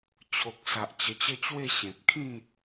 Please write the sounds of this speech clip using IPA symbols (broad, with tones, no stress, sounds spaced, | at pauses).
t͡ɕʰ o˨ k̚ s a˨ ʔ t͡ɕ ə˧ t͡ɕ ə˥˧ t͡ɕ w e˥˧ ɕ ẽ˨ p̚ kʰ ĩ˥˧